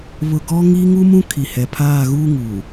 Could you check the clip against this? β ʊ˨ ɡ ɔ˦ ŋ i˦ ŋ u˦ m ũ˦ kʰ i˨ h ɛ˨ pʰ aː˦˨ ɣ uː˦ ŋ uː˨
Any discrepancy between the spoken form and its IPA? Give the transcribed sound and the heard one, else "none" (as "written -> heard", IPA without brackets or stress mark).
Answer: none